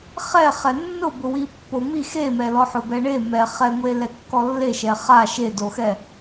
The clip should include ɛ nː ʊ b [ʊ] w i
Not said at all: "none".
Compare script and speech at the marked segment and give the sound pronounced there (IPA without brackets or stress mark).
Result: ʊ